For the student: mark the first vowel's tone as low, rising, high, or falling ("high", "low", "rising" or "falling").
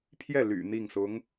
falling